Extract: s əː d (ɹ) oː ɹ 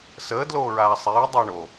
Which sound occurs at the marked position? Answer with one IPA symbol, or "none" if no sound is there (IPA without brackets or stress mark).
l